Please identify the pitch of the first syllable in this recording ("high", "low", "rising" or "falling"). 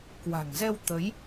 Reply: low